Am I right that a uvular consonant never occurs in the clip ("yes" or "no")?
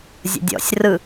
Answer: yes